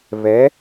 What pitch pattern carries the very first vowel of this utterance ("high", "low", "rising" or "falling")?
rising